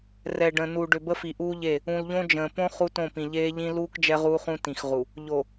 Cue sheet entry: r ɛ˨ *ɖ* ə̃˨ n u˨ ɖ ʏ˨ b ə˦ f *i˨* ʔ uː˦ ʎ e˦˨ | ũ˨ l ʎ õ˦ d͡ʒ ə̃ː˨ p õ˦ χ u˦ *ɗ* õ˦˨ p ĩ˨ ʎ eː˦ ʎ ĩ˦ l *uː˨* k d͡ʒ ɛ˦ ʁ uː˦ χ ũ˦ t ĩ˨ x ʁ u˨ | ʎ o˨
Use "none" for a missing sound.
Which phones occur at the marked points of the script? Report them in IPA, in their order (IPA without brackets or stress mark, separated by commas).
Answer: ɖ, i˨, t, uː˦